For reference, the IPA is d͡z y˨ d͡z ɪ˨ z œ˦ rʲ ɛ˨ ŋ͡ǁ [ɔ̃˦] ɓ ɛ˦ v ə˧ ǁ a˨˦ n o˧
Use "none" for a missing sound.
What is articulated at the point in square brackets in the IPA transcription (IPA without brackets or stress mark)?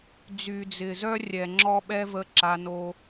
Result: ɔ˦